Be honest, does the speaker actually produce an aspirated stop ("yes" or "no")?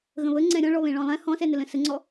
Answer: no